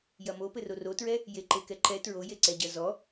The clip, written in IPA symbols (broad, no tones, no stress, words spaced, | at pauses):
jɐmopɘ rorotɹɛ | jeǃekɛǃɛ tɹojeǀɛɟɐ zɔ